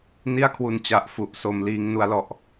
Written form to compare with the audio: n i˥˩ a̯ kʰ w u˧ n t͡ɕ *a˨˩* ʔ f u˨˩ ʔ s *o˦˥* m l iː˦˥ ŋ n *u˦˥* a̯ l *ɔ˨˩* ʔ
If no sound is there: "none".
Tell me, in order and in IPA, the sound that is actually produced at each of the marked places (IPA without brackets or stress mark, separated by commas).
a˨˩, o˩˦, u˦˥, ɔ˨˩